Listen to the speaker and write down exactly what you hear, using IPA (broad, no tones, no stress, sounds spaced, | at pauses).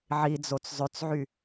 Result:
ʕ i d͡z o t͡s zˤ ø t͡s ʕ y